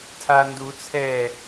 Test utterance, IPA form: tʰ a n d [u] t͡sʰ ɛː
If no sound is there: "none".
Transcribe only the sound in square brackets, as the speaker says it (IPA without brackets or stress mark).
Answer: u